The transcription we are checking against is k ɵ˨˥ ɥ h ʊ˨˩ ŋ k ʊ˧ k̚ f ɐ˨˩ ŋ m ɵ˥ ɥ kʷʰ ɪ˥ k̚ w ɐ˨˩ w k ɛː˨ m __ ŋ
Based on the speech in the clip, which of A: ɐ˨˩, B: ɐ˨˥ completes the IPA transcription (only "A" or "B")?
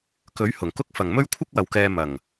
A